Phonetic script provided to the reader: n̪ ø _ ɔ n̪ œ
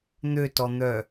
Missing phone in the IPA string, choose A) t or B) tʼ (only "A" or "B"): A